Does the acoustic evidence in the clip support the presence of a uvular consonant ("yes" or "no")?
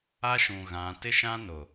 no